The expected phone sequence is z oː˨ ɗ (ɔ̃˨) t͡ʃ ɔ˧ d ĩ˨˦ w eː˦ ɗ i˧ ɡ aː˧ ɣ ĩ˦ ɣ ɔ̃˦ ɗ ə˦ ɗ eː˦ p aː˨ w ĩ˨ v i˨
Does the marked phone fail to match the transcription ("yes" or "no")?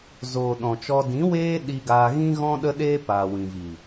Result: no